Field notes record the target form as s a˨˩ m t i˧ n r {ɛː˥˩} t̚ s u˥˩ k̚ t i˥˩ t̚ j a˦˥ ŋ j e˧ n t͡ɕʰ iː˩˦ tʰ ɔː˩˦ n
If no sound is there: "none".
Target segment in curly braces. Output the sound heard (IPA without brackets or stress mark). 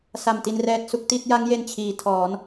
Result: ɛː˦˥